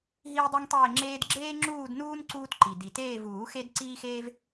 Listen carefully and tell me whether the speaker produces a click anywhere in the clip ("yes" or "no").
yes